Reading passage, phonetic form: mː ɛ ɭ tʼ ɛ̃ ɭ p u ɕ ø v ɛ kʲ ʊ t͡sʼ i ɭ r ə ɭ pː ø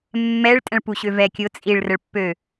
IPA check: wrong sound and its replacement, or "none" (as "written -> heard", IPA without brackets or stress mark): none